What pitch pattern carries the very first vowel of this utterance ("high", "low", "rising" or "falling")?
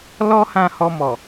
high